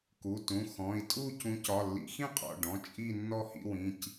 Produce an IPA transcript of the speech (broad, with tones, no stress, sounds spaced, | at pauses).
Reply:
k u˩˧˩ t ũ˩˧˩ x ɔ̃˩˧˩ i̯ tʼ u˥˧ c ũ˨˦ c ɒ˩˧˩ lː ḭ˨˦ x ĩ˥˧ qʼ ɔ̰˩˧˩ ɖ ɔ̃˩˧˩ t͡ʃʼ i˥˧ nː ɔ˥˧ h ḭ˥˧ w ĩ˩˧˩ c